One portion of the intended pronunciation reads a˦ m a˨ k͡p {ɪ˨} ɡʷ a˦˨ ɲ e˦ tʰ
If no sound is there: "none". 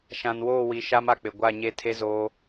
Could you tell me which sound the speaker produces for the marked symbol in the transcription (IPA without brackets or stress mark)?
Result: ɪ˨